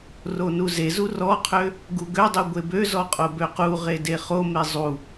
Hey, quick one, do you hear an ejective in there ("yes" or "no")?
yes